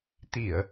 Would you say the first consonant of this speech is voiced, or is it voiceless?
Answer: voiceless